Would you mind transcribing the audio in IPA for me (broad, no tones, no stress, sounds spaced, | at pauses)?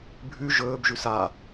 bʱ ʉ ʒ ɵː b ʒ ʉ s a